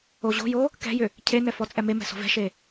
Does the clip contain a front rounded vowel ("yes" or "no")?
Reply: yes